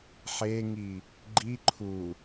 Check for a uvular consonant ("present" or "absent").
absent